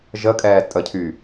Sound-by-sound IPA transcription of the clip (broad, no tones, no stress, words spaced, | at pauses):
ʒəkʼɛː tʼəcʰy